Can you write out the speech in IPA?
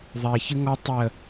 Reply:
ðˤ ɛ ç ɨ ŋ ɔ tˤ ə

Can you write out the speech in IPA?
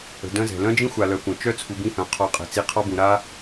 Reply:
ə̤˨ d œ̃˦ z ɛ̤˩ l œ̃˥ d͡ʒ ĩ˥ xʷ a˨ l œ˨ kʷ œ̃˩ t͡ʃ œ˥ t͡sʰ u˨ b ĩ˦ h œ̃˩ qʰ ɔ˨ qʼ ɛ̤˩ t͡s i˨ qʰ ɔ˥ b ũ˩ ɾ a˥

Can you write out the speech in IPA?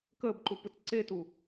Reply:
k əː b ǃ u p ɯ t ǀ e t u

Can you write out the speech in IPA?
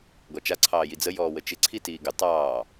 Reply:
ɡ ɔ t͡ʃ a ǀʰ ɑː j i d͡z ə j ɔː w ə t͡ʃ ɪ ǀʰ i t iː ɡ ə tˤ ɑː

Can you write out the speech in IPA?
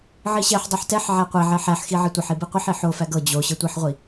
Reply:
ʕ i ɕ ɛ ħ dˤ o ħ t ɛ ħ ʕ æ qʷ e ʕ ɛ ħ æ ħ x i ʕ i tʷ e ħ i b i qʷ i ħ i ħ o f æ ɡ ɤ d͡ʑ o ɕ ɤ tʷ i ħ ʁʷ i

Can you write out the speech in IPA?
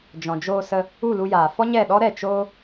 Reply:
d͡ʒ ɔ̃˨ d͡ʒ oː˧ s ə˧ | u˦˨ l u˧ j aː˨ f ɔ˦ ɲ ɛ˦˨ ɗ ɔ˦ ɾ ɛ˦˨ t͡ʃ oː˦

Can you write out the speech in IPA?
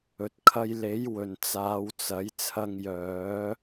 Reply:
ɵ˨ t̚ kʰ ɐ˧ j l e˨˥ j w ɵ˨ n t͡s aː˨˧ w t͡s ɐ˨˥ j t͡sʰ ɐ˧ ŋ j œː˨˥

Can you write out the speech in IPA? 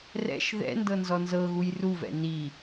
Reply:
r ɛ̰ ʃ ð ɛ̰ n d ɤ n z ɔ n z ɤ ɣ u j r u v ɛ̰ n i

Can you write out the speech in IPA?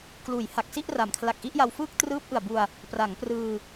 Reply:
k l uː˩˦ j h a˨˩ k̚ s i˥˩ ʔ r a˩˦ m kʰ l a˨˩ k̚ ʔ i˥˩ ʔ j a˧ w f ɯː˥˩ k̚ t r ɯː˦˥ p̚ ʔ ɯ˨˩ a̯ b u˧ a̯ | p r a˩˦ ŋ p r ɯː˧

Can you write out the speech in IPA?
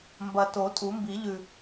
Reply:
m b ɐ˨˩ t o˨˩˦ tʼ u˨˩˦ m b i˨˩˦ ʎ ʉ˨˩

